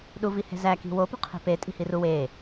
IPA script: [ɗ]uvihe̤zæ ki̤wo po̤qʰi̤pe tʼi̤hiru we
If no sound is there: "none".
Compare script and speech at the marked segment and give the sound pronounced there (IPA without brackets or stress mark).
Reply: ɗ